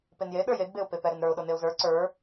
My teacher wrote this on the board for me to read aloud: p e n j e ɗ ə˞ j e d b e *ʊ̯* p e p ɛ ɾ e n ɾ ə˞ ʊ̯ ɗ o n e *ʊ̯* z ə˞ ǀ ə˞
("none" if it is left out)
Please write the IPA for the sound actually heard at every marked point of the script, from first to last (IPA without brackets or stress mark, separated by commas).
ʊ̯, ʊ̯